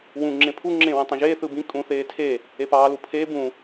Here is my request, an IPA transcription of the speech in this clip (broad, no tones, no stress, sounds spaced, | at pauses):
w ũ ŋ͡ǁ ẽ pʰ u ŋ͡ǁ ẽː w ẽ tˤ ẽ ʒ eː θ ɯ b ĩ kʼ ũ θ eː tʰ e | e p ɑː l u pʰ eː b ũ